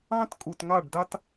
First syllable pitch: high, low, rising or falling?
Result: high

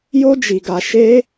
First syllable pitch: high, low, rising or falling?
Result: high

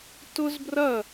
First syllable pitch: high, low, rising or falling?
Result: high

